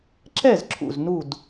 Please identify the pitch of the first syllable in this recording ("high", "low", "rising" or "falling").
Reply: falling